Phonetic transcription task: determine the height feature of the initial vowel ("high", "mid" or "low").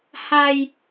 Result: low